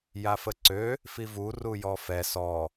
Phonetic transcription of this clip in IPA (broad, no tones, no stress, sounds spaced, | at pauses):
j a f ə ǀ ø | f i v u r u j ɔ f ɛ s ɔ